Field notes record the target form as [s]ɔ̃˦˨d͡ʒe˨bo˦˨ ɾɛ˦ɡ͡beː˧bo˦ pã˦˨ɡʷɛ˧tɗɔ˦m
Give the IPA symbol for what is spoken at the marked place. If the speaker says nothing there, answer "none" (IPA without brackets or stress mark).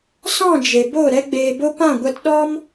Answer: s